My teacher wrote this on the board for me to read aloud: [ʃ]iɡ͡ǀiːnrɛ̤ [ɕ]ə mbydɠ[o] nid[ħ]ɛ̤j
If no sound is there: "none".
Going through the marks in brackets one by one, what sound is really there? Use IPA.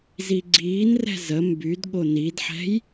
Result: z, z, o, ħ

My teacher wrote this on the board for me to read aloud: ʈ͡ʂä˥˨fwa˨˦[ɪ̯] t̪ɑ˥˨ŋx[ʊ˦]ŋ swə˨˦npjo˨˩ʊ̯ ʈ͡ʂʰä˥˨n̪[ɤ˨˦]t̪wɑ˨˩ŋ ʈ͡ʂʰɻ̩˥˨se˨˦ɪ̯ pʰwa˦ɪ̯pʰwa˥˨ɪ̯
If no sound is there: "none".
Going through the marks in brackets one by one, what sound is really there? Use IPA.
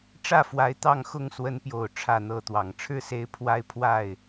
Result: ɪ̯, ʊ˥˨, ɤ˥˨

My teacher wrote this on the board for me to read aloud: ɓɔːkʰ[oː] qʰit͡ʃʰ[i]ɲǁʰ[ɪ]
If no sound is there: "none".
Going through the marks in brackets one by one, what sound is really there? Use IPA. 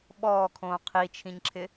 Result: õː, ĩ, ɪ

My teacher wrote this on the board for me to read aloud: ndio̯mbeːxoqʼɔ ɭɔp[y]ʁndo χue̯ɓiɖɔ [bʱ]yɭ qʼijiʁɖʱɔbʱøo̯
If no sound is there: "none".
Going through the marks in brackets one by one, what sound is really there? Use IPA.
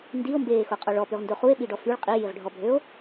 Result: y, f

